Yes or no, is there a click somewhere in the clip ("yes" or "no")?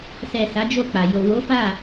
no